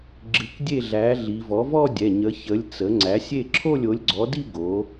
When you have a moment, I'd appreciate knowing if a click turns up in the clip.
yes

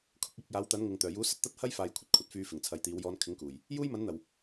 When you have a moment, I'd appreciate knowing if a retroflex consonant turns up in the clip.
no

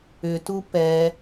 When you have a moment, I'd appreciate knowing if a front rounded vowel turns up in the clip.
yes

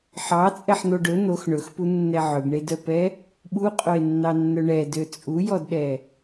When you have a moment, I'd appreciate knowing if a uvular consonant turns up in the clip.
yes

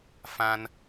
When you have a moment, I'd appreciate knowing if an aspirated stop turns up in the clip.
no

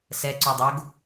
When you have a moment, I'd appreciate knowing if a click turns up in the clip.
yes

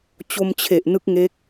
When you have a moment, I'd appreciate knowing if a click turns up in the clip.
no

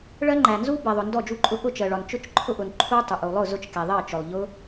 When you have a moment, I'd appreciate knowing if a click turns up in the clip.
yes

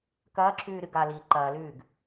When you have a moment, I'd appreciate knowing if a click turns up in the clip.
yes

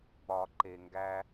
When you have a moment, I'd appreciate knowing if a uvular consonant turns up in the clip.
no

